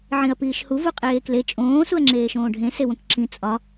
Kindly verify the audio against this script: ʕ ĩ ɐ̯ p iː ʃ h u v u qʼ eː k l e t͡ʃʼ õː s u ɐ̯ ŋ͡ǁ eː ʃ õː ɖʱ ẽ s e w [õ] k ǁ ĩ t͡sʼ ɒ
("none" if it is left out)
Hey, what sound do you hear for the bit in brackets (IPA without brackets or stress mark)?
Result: õ